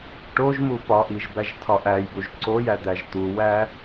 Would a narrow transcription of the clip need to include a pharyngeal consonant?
no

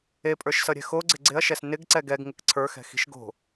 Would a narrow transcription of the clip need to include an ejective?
yes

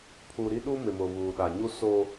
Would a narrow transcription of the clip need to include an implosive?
yes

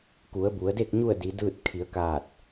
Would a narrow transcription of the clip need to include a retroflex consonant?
no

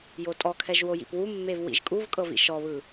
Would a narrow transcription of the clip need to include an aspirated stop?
yes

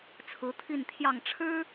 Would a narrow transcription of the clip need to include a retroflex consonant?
yes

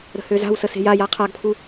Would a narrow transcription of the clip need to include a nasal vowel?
no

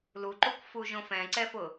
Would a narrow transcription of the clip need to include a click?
yes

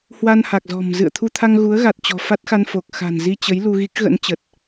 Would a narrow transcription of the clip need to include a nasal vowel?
no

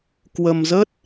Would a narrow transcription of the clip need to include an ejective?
no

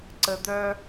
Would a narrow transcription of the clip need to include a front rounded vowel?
yes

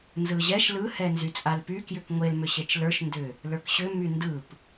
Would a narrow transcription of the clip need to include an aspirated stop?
no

